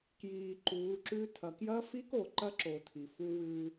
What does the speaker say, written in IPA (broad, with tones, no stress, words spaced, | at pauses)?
kjiː˨ ǃuː˨˦ǁʉ˦ tʰɐ˨kjɐ˦fi˦k o˨ǃɐ˦ǁo˨ tʰi˨fu˦wʉ˦